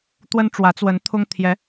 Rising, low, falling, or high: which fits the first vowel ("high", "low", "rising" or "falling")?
high